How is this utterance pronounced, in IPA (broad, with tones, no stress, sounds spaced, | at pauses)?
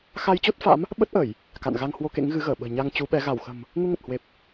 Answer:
x a˧ j t͡ɕ o˦˥ t̚ f a̰˧˥ m | ɓ ə˦˥ t̚ ʔ ə˧˩˨ j | k a̰˧˨ n ɣ a˧ ŋ h w o˧ k ḛ˧˥ ŋ ɣ ɨ˨˦ ɣ əː˧˩ ɓ ə̤ː˨˩ ɲ a˧ ŋ t͡ɕ u˨˦ ɓ ɛ˨˦ ɣ a˧˩ w x ə̤˨˩ m | ŋ u˧ ŋ ə˨˩ t̚ h w e˨˩ p̚